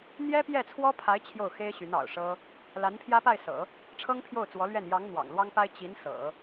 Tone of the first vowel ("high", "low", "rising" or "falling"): high